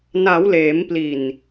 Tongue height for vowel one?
low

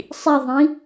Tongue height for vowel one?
high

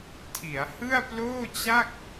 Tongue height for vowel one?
high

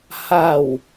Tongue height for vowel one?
low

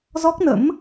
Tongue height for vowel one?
mid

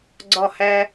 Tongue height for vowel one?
low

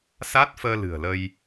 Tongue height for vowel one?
low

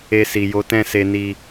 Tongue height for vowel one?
mid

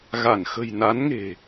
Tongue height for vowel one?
low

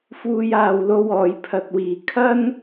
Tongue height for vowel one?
high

